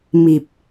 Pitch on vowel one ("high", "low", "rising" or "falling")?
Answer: low